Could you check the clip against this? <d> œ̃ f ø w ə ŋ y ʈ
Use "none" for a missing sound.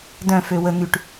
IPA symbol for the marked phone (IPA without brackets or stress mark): d